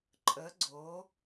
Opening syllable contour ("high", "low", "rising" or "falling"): rising